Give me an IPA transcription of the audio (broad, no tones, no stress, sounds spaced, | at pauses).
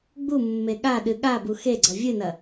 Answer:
ɡ͡b u mː e ɠ a ɗ ɨ ɠ a b u x e ɡ͡ǀ ɐ vʲ ɨ n ɐ